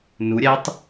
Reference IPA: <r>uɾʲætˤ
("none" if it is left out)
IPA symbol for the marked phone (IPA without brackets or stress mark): n